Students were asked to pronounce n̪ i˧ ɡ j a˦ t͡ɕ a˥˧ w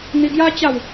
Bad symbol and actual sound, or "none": none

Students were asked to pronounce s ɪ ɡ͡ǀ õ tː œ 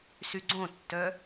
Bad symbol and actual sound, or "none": ɪ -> y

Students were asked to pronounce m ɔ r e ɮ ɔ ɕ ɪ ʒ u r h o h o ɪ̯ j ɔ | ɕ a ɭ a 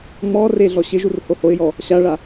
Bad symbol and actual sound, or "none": none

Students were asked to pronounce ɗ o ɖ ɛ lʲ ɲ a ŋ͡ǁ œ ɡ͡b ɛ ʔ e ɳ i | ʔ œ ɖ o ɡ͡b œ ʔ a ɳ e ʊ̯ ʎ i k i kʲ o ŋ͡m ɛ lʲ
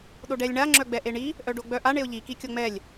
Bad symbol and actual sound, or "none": ɲ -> ɳ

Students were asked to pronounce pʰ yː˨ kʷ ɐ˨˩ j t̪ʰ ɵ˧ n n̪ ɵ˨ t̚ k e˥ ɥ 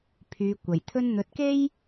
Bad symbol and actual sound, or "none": ɥ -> j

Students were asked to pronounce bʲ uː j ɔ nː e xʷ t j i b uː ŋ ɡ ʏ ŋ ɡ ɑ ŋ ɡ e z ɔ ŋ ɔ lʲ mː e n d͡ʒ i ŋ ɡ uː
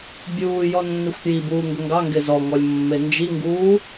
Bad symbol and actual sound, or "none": none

